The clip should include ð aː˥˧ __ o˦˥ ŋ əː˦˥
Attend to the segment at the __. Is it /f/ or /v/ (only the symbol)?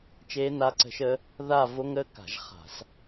v